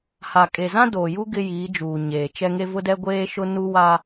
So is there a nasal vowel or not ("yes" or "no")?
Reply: yes